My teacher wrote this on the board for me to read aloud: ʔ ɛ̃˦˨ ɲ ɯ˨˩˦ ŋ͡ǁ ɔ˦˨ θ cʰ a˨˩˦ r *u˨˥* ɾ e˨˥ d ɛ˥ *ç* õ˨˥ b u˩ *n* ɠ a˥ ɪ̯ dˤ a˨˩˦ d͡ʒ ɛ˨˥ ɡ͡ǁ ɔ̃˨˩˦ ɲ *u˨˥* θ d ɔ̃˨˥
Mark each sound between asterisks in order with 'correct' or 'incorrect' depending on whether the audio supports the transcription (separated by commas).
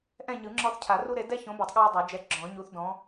incorrect, correct, incorrect, correct